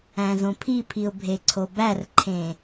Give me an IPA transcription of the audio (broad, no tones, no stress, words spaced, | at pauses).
æ̃zõpʰipʰiʊ̯ bʱeǀʰobærǃʰẽ